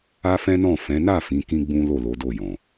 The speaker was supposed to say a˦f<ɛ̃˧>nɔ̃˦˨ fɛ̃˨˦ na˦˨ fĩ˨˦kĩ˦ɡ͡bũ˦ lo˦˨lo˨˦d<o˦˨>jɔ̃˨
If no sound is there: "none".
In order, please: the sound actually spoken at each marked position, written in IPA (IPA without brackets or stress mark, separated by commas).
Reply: ɛ̃˦, o˦˨